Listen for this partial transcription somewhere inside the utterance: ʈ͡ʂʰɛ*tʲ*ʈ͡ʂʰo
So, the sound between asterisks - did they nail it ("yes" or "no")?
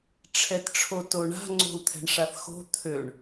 no